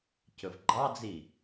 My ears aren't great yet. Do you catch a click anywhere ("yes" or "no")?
yes